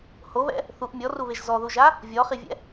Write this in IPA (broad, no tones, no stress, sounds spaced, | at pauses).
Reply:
h o β ɛ̰ | θ u ʔ mʲ ɔ r u β e ʒ z ɔ ð u ʒ a | vʲ ɔ χ i vʲ ɛ̰